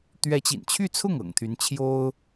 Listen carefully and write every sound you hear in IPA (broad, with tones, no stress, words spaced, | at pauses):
t̪ɥɛ˧˥t͡ɕḭ˨˩nt͡ɕʰy˥˧t͡sʰʊ˥˩ŋ ɤ̰˨˩ŋt̪ʰy˧˥nt͡ɕʰjo˥ʊ̯